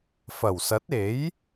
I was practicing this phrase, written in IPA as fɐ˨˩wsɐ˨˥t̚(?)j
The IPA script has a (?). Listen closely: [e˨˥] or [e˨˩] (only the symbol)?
e˨˥